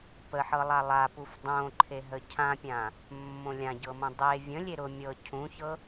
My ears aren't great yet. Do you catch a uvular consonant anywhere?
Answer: no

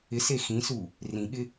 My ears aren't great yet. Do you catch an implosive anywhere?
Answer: yes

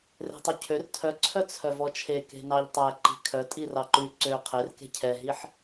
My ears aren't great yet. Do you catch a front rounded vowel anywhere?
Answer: yes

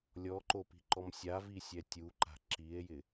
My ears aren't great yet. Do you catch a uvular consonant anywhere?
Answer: no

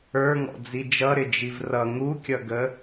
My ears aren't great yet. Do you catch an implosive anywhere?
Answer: no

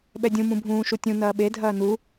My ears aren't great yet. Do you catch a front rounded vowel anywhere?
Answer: no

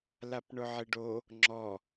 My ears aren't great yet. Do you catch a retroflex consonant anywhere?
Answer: yes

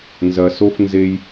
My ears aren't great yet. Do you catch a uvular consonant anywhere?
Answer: no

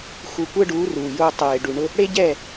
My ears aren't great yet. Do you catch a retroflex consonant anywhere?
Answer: yes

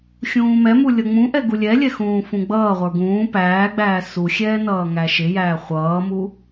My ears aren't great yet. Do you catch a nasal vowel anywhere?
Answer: yes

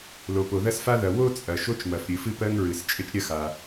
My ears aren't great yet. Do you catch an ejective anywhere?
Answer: yes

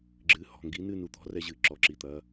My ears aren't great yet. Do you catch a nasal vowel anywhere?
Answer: no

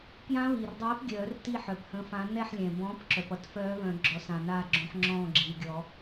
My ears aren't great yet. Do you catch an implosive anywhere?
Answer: no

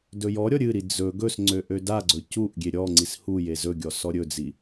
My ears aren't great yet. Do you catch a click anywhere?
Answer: yes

